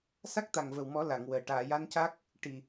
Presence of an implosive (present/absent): absent